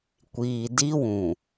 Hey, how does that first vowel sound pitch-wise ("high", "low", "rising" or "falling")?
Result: low